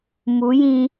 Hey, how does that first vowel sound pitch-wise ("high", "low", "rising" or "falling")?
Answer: rising